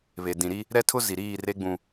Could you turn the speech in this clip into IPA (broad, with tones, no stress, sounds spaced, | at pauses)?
β e˨ d ĩ˨ ɾ i˦ | ɾ ɛ˦ tʰ ʊ˦ z i˨ ɾ iː˦˨ r e˦ ɡ͡b ũ˨